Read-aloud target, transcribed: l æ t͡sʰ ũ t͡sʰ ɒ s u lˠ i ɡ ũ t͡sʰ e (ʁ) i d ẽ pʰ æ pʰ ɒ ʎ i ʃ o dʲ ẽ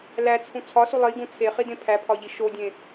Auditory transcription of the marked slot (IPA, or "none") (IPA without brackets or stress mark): χ